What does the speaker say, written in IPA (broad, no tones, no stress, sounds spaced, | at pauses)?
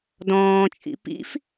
d ɔ̃ː t͡ʃʼ ḭ p ḭ f